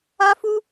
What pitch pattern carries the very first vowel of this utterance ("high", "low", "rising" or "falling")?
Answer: high